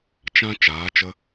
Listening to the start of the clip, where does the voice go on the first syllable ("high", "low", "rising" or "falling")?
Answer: high